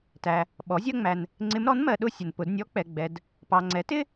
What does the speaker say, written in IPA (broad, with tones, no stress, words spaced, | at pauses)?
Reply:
tæ˨ | ɓɔ˩˥zʲɜ˥ŋ͡mæ˨n | ŋ͡ǀɪ˧˥mɾɔ˩˥nmɜ˨ɗʊ˥˧ sʲə˨npʊ˨˩˦d nʲɔ˧˥k͡pɛ˨ɡ͡bɛ˨d | pɑ˨ŋ͡ǀɛ˩˥tɪ˥